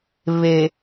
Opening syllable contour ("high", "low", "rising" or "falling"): low